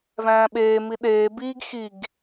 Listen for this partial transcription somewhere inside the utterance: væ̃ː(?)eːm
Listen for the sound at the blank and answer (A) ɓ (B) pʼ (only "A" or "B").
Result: A